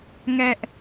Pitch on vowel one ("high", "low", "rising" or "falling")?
high